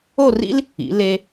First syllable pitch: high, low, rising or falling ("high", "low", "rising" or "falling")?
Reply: falling